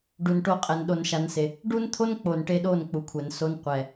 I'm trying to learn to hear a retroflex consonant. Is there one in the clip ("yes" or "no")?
yes